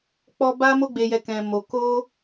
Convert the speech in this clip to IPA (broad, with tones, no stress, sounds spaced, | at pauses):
k͡p ɔ˦ b a˦ m o˦ ɡ͡b e˧ j ɛ˧ k ɛ̃˧ m o˧ k o˦